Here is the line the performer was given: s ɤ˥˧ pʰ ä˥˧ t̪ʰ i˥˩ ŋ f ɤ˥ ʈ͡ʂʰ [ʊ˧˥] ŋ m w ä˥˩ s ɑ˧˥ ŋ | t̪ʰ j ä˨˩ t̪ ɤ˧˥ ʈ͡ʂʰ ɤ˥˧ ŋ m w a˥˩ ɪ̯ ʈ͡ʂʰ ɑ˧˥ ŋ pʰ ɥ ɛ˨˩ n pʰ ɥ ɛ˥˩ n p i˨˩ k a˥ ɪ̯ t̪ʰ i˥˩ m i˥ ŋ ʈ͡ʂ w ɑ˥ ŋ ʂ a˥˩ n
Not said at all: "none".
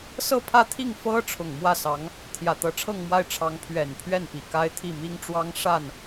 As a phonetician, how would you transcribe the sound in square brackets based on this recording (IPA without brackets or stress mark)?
ʊ˨˩